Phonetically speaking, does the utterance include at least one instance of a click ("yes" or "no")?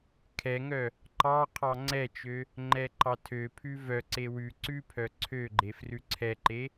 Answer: yes